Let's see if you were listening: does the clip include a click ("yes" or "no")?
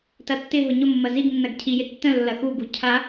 no